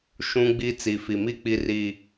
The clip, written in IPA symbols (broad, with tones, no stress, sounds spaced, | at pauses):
ʃ ũ˦ ɡ͡b i˦ t͡s i˨ f i˨ m i˦˨ k͡p i˦ r iː˦